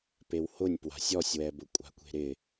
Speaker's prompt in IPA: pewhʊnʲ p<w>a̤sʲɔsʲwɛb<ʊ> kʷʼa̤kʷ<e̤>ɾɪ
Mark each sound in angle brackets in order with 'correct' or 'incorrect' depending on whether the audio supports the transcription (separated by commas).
correct, correct, correct